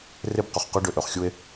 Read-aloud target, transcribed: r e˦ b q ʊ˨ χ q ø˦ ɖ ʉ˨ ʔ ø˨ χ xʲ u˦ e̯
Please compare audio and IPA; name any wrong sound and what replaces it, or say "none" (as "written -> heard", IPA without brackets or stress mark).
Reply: ʉ˨ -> ø˨